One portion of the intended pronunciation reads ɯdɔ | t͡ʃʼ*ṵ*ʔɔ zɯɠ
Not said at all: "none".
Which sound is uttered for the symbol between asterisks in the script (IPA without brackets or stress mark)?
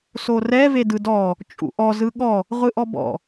ṵ